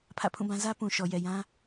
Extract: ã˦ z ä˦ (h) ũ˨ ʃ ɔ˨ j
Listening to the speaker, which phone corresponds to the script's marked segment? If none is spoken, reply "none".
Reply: p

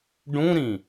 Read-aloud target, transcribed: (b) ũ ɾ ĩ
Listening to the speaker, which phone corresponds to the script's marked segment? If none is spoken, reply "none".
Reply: ɖ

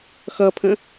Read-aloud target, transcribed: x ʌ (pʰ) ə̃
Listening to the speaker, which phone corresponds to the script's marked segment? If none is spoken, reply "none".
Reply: pʰ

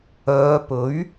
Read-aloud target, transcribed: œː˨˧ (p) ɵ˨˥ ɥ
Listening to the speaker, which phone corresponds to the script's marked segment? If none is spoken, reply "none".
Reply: p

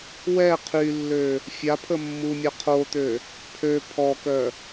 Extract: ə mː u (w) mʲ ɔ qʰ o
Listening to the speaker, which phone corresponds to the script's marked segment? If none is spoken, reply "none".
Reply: none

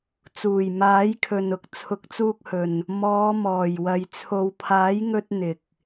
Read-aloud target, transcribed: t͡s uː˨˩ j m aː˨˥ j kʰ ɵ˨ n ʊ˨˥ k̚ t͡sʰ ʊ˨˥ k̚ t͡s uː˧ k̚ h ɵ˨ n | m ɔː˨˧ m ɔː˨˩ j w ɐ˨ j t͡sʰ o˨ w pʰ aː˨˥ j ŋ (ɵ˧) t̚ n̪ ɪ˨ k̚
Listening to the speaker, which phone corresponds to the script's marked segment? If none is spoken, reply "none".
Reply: ɵ˧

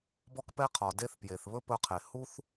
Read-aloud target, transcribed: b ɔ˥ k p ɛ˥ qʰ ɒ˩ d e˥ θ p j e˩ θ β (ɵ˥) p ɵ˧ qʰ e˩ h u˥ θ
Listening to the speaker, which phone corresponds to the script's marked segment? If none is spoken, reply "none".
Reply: ɵ˥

